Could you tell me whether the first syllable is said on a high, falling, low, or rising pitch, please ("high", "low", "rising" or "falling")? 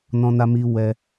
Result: high